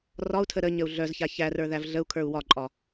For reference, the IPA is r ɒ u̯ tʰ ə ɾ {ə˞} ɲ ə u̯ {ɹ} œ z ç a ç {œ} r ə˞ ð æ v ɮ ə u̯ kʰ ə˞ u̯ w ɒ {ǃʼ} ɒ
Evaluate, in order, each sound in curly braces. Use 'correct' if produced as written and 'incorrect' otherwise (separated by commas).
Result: incorrect, incorrect, incorrect, correct